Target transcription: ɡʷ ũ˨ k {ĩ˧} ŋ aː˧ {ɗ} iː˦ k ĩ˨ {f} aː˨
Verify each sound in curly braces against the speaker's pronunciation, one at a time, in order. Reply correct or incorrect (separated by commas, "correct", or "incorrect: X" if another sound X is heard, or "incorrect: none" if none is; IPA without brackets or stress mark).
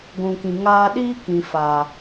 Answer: incorrect: ĩ˨, correct, correct